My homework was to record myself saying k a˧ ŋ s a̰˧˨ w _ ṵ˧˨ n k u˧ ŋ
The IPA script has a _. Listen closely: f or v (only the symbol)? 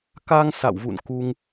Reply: v